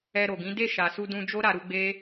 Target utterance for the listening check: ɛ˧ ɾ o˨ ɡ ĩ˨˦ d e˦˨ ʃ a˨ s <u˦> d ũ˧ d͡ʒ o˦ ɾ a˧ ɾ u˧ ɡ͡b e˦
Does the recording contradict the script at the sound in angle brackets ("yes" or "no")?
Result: yes